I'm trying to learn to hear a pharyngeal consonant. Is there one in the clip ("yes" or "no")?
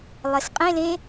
no